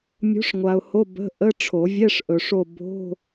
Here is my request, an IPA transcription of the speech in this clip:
mʲ o̤˨˥ ʂ ŋʷ a˨ ʊ̯ h o˧˥˧ b ə̤˧˥˧ ʔ ə˧˥˧ ʈ͡ʂʰ o˨˩˦ vʲ ɛ˧˥˧ ʂ ʔ ɵ˨ ʂ o˦˨ b o̤˧˥˧

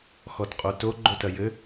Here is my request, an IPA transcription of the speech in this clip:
x ɔ t qʼ o t o ɡ͡ǃ o t ɐ j ɘ

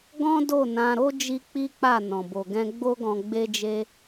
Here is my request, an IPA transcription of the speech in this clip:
ɡ ɔ̃˦ d o˦˨ n ã˧ ɾ o˦ d͡ʒ i˦ k͡p i˦ k͡p a˦˨ n ɔ̃˨ b o˨ ɡ ɛ̃˧ ɡ͡b o˦ ɡ ɔ̃˧ ɡ͡b e˧ d͡ʒ e˧

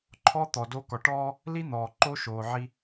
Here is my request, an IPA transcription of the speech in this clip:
ǃʰ ɔ˦ t̪ ɔ˨ d o˦ k ɔ˨ ʈ ɔː˦ | l i˦ n̪ ɔː˨ ǃ o˦ ʃ oː˨ ʕ i˦

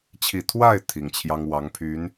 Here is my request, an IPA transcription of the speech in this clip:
t͡ɕʰ i˨˩ t̪ʰ w a˥˩ ɪ̯ t̪ʰ i˨˩ ŋ t͡ɕʰ j ɑ˥ ŋ w ɑ˧˥ ŋ pʰ y˧˥ n

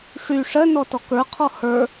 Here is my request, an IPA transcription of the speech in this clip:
ʂ y ʂ ɜ n ɔ t ɔ k ə˞ qʰ ɔ h ə˞

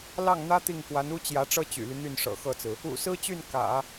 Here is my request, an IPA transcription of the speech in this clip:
l ɑ˥˩ ŋ n̪ ä˥ t̪ i˥˩ ŋ k w a˧˥ n u˥ t͡ɕ j ä˧˥ ʈ͡ʂ ɤ˥ t͡ɕ y̰˨˩ l y˦ n̪ y˥˩ n ʂ ɤ̰˨˩ x ɤ˥˩ t͡s ɹ̩˩ | ṵ˨˩ s ɹ̩˥ t͡ɕ y˥˩ n k ä̰˨˩˦

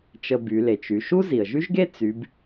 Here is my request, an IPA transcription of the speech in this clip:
t͡ʃ ə˧ b y˩˧ l e˩ t͡ʃ y˩˧ ʃ u˥ z i˩ ə̯ ʒ y˥ ʒ ɡ e˥ t͡s y˩˧ b

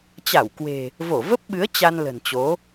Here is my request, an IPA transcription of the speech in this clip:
t͡ɕ a˧˩ w k w e̤˨˩ | v o˧˩ v ə˦˥ p̚ ɓ ɨ˨˦ ə̯ t͡ɕ a˧ n l ə̤˨˩ n t͡ɕ o˨˦

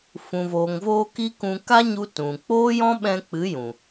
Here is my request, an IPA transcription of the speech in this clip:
f ũ˨ v oː˨ ŋ v oː˧ k i˦ k ũ˧ k a˦ ɲ u˧ t ũ˨ k͡p oː˦ j ɔ̃˦ ɓ ɛ̃˧ k͡p ɨ˨˦ j ũ˨

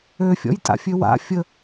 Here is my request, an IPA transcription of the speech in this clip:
ø fʲ ɔ̰ j tʼ a̰ fʲ ø w a̰ fʲ ə

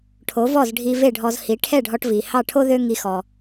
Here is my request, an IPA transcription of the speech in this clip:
ʈʰ o˩˥ v ɔ˥˩ z ɖʱ i˧ v e˥˩ ɖʱ ɔ˧ z h i˩˥ ʈʰ ɛ˥˩ ɖʱ ɔ˧ ʈ v i˩ h ɑ˥˩ ʈʰ o˥ ð ø˥ ŋ i˧ x ɔ˩

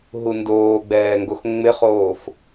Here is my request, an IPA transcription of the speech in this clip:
ɦ u n d oː ɡ͡b ɛː ŋ ɡ o x ŋ͡m ɪ χ oː f

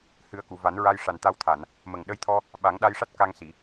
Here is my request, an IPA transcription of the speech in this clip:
h ɨ˨˩˦ ə̯ k u˨˩˨ v a˨˩˦ n ɹ a˧ j ʂ a˨˩ n t̪ a˧ w t̪ʰ a˨˩˨ n | m ə˨˩ ŋ ɗ ə˧ j t̪ʰ ɔ˧ | ɓ a˨˩˦ ŋ ɗ a˧ j ʂ a˦˥ t̚ k a˧ ŋ s i˨˩˨

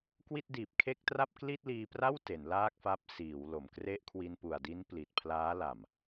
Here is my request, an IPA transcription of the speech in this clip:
k w i˥˩ t̚ d iː˨˩ p̚ kʰ e˥˩ k̚ t r a˥˩ p̚ k l i˥˩ t̚ l iː˧ p r a˥˩ w t e˩˦ n l aː˥˩ k̚ f a˦˥ p̚ s iː˩˦ w l o˨˩ m k r e˥˩ ʔ kʰ w i˧ n p u˨˩ a̯ d i˦˥ n p l i˨˩ t̚ pʰ l aː˦˥ l a˨˩ m

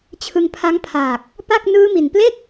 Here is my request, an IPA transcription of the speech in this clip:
t͡ɕʰ ɯ˧ ŋ pʰ a˦˥ ŋ pʰ aː˨˩ k̚ | p a˥˩ k̚ n ɯː˦˥ m i˨˩ n p l e˥˩ k̚

